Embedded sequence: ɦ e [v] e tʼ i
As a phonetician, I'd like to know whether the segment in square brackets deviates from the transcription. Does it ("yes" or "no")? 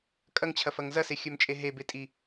yes